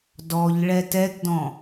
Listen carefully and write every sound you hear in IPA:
d ɔ ʎ ɭ ɛ t ɛ ɡ d ɔ̃

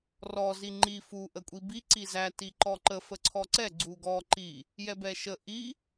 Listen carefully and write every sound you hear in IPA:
r ɔ z i ŋ͡ǃ i f u ʔ ə kʷʼ i b i ǀ i z æ t i ǃ ɔ ǃ ə f ə ǀʰ ɔ ǀ ɛ ɡ͡ǀ u ɡ ɔ ǃ i | j ɛ b ɛ ʃ ə ʔ i

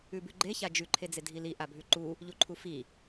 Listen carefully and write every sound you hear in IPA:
ʉ b ʉ ɡ͡ǃ e ç a d͡ʒ ʉ ǃʰ e d͡z e dʱ i l i ʔ a bʱ ʉ ǃ u | ʎ u ǃʰ u f i

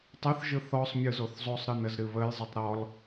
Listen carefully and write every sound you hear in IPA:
tˤ ə θ ʒ ɯ θ ɔ sˤ mʲ ɯ z o θ zˤ o sˤ ɾ ɨ n ə z ɾ ɨ β ə j zˤ ɯ tˤ ɾ ɔ l

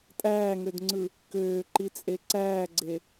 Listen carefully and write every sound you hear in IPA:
tʼ æː ŋ ø d ŋ͡ǀ ɯ | k øː ǃ i t͡sʼ e ǀ æː ɡ͡ǀ e

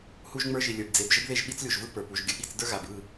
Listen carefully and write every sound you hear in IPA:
h u˦ ʒ ŋ͡m ə˞˦ ʒ i˨ lʲ ə˞˨ b d͡z e˨ b ʒ ə˦ b ð e˦˨ ʒ ɓ i˦ t͡s lʲ u˨ ʒ v ɯ˦ p ə˞˨ p u˨ ʒ ɡʲ ə˨ ɠ i˦˨ t͡s d ə˞˦ ɣ a˨ b ɯ˦˨

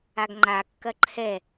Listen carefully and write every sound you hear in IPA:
a ɡ ŋ͡ǃ a kː ɐ ǃʰ ɛ

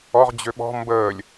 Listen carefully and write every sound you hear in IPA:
ɔ ʁ d͡ʑ ø ɓ ɔ̤ m b əː lʲ

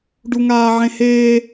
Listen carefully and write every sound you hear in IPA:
ɖ u ŋ aː ʕ ẽ h eː

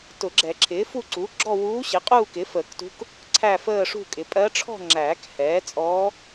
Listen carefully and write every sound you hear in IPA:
t ʊ˨˩˦ ɡ͡ǁ ɛ˨˩˦ ǁʰ ɪː˩˥ f u˥˧ ǀ u˩˥ ɡ͡ǁ ɔ˥˧ w uː˧˥ ɕ ɪ˩˥ qʼ uː˥˧ k ɪ˩˥ f əː˨˩˦ k t ṳ˧˥ k | ǀʰ æ˥˧ f əː˥˧ ʂ ṳ˥˧ kʼ ɪ˩˥ pʼ ɜ˧˥ ʈ͡ʂʰ ɔ̤˥˧ ŋ͡ǁ æː˨˩˦ k h ɛː˩˥ t͡sʼ ɔː˧˥

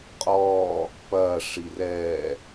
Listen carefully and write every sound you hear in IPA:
qʼ ɔː | p ɐː ʂ i r ɛː

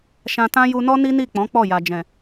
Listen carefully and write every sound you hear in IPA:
ʃ ã˧ t ã˦ j u˧ n ɔ˦ n i˦ n i˦˨ k͡p ɔ̃˨˦ k͡p ɔ˦˨ j a˨ d͡ʒ ɛ̃˨

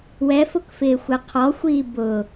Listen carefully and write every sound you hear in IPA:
w ɛ f ʊ k f ɪː xʷ ɛ qʰ ɔ xʷ iː b ʊ

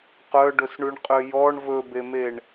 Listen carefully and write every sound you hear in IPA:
q œ ɖ ɵ s ɳ ʉ ɳ qʼ ø j ɔ ɳ v ɵ b e m e ɳ

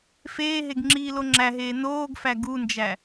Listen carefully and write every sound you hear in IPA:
f eː ɦ e ɡ ŋ͡ǁ iː l o ŋ͡ǁ æ ɦ eː n oː ɡ f æ ɡ u n d͡ʒ æ

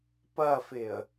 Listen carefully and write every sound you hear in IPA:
p ɐ f ɪ ə̯

